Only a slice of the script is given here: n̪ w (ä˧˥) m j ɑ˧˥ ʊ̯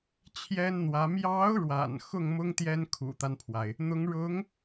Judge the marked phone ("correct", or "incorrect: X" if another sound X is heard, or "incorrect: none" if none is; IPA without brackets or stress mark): correct